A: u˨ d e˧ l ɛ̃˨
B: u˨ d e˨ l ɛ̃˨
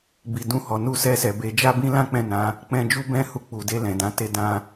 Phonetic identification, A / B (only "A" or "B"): A